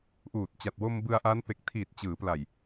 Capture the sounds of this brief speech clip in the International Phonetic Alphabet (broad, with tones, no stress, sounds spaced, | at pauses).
ʔ uː˨˩ t̚ t͡ɕ a˨˩ t̚ w o˧ m b ɯ˧ a̯ ʔ a˦˥ n p e˨˩ k̚ tʰ iː˨˩ t̚ t͡ɕ ɯː˩˦ p l a˨˩ j